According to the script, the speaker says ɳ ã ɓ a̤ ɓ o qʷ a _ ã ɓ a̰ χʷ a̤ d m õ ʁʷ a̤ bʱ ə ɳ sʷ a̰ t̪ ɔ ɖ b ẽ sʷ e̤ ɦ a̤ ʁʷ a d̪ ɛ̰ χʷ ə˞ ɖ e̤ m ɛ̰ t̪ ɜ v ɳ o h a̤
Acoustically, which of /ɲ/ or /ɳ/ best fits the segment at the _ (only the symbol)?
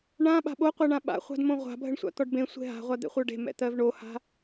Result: ɳ